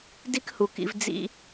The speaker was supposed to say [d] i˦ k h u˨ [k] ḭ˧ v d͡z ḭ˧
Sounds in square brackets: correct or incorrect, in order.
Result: correct, correct

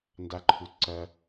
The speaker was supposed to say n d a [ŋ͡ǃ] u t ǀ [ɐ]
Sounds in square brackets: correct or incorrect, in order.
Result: incorrect: ǃʰ, correct

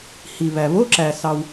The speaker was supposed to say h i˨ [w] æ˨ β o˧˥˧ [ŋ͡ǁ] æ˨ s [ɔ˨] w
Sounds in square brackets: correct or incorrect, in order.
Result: incorrect: β, incorrect: ǁ, incorrect: ɑ˨

